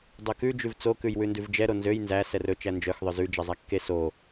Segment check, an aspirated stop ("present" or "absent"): absent